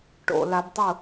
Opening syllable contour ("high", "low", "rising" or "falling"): low